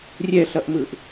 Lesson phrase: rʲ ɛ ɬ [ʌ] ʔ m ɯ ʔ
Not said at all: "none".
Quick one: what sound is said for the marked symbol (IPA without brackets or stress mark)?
ʌ